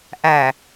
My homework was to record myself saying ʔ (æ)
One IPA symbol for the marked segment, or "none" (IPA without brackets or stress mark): æ